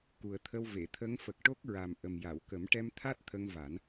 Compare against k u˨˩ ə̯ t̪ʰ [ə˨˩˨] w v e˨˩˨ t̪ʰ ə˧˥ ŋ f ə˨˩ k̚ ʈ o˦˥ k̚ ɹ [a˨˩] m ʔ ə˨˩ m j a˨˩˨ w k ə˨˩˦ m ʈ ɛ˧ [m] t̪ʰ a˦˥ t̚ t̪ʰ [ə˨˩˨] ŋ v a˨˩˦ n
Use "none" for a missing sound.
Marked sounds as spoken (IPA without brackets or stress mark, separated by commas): ə˧, a˨˩, m, ə˧